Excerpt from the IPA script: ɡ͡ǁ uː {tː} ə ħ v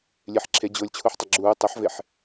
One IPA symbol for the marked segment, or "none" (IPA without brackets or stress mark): tˤ